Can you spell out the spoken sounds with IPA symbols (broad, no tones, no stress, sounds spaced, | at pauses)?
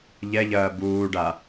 ʎ ɛ ʎ ɐː b uː ɖ a